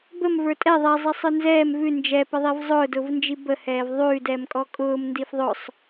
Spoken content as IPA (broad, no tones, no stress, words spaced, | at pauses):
bəmvə˞ tʼɛ ðˤɛzˤisˤə˞ nzɛːm vʉ nd͡ʒɛpəðˤiv zˤʊːdʊːvnd͡ʒi bəhɛːv ðˤʉːdɛːmkʼɔ kʼʊːmndif ðˤʊsˤ